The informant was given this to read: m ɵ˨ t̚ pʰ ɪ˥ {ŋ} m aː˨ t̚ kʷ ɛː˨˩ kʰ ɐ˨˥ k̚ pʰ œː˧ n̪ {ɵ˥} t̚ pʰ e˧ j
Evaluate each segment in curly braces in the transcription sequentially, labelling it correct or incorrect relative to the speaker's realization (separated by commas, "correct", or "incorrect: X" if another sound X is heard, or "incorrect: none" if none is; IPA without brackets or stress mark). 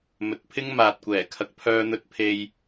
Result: correct, incorrect: ɵ˧